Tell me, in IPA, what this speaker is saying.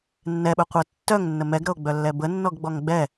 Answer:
nː ɛ ɓ ɵ qʷ ɤ tː œ ŋ nː ə m ɛ ɡ ɾ ɤ o̯ ɡ͡b œ lː ɛ b ə nː ɔ ɡ ɡ͡b ɔ ŋ ɡ͡b ɛ

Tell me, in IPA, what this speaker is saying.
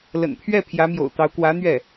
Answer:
l ə̰˨˩ n pʰ ɥ ɛ˥˩ pʰ j ä˧˥ m j o̰˨˩ ʊ̯ t̪ ɑ˧˥ ʊ̯ k w ä˧˥ n̪ ɥ ɛ˥˩

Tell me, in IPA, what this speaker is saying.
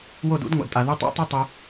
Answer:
w o˦˨ d ṵ˦ d ŋʷ a̰˨ d tʼ a˨ ð u˧ tˤ o̰˦ tˤ ɛ˦ tˤ i˧

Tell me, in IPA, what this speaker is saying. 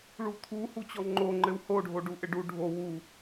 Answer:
ɭ u t̪ʰ u h u t͡ɕ ɔ ŋ͡ǃ o ŋ͡ǃ ɘ w h o ɖʱ o ɖ u ʔ ɘ ɖ u ɖʱ o w u

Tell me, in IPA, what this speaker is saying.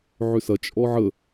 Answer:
ʕ ʏ s ɐ t͡ʃʼ ɔ ʕ ə

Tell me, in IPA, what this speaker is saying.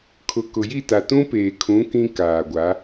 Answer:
kʰ ʊ˨ k ʊ˨ j i˦˨ t a˨ t ũ˦ p eː˨ kʰ ũ˨˦ k ĩ˦ k aː˨ ɡʷ a˨˦

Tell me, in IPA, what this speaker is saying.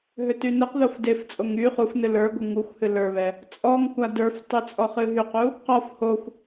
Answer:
ɦ ø t y n ɨ q ð o f d e f t͡sʼ o ŋ y χ u f n ɨ l ə˞ ɡʷ ɨ ŋ u xʷ h ɨ l ə˞ β ɛ | t͡sʼ ɔ ŋ kʷ a d ə˞ f tˤ y t͡sʼ ɔ χ ɨ ɦ y q u | q ɔ f h o xʷ

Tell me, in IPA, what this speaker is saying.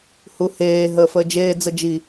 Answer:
h u h eː ɦ əː f əː d͡ʒ eː d͡z ə d͡ʒ i

